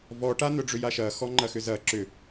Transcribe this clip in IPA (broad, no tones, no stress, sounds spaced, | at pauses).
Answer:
v ɔ ʈ a n̪ œ ɖ͡ʐ ʏ j a ʃ ɐ x ɔ ŋ͡ǃ ɐ x ʏ z ɐ ǁ ʏ